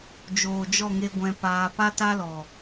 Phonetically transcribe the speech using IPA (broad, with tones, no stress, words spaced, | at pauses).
d͡ʒoː˨d͡ʒɔ˦˨ŋe˧ ɡʷɛ̃˧paː˧ pa˦ ta˦lɔ˨